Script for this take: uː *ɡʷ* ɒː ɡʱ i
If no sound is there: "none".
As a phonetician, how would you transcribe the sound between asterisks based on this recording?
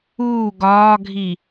ɡ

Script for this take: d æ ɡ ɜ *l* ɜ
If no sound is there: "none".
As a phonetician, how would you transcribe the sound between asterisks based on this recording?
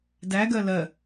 l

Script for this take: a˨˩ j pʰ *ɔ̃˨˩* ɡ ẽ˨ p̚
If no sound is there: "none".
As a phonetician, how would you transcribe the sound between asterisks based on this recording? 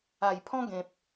ɔ̃˦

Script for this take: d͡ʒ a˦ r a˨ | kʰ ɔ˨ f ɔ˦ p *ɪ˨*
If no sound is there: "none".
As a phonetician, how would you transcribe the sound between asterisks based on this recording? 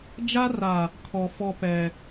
ɛ˨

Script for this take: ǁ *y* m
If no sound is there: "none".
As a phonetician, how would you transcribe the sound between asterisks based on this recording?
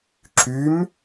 y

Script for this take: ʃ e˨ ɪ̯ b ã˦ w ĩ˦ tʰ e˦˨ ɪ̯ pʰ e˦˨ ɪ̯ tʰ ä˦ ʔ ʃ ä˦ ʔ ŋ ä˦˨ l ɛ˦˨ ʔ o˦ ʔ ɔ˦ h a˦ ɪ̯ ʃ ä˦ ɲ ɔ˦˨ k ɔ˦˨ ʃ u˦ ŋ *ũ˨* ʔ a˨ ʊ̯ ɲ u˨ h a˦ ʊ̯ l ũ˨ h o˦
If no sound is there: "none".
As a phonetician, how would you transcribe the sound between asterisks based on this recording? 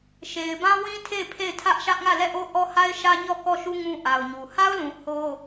ũ˦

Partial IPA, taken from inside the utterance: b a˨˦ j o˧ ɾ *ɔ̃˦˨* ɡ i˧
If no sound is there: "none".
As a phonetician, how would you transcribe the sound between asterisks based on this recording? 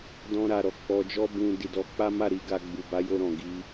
ɔ̃˨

